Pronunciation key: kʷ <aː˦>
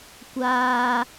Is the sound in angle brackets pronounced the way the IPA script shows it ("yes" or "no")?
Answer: yes